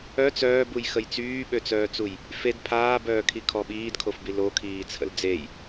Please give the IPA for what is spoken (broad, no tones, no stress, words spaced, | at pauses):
œ t͡sœːbujxəj t͡syːɓøt͡sœːt͡suj | fed pʰaːbœːkʰikʰɔ ɓiːdkʰofbi lokʰiːt͡sʰə̰l d͡zej